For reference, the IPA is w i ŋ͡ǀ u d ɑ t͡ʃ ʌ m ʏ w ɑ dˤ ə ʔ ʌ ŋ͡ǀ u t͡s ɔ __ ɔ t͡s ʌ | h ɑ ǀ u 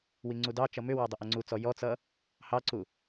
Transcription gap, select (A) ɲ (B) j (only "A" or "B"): B